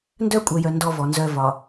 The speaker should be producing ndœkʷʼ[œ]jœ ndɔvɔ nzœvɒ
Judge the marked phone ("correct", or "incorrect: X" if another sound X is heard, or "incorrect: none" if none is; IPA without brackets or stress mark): correct